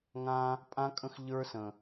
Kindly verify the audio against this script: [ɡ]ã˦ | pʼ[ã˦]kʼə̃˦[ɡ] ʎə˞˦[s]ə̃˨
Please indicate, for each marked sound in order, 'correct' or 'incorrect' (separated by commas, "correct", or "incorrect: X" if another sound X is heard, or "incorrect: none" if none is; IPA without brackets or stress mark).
incorrect: ŋ, correct, incorrect: x, correct